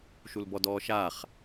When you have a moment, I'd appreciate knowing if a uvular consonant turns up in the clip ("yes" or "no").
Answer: yes